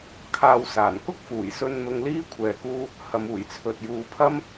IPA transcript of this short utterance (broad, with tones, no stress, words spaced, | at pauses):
kʰaː˧wsaː˨˩n kʊ˥k̚fuː˨˩jsɵ˧n n̪ʊ˧ŋliː˥ kʷʰɛː˧kuː˥ | hɐ˨muː˨˩jt͡sʰɵ˨t̚ juː˨˧pʰɐ˥m